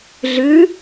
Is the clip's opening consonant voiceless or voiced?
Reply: voiced